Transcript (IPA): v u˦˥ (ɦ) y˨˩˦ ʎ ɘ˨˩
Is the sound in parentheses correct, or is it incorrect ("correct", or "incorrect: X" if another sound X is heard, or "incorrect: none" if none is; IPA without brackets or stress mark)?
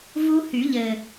incorrect: h